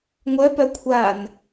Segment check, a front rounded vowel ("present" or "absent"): present